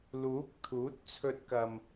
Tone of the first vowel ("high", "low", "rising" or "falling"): rising